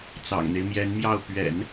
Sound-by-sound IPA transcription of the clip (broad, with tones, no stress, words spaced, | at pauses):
t͡sɑ̰˨˩ŋn̪e˦ɪ̯mjɛ˧˥nmjɑ˥˩ʊ̯ pɥɛ̰˨˩˦n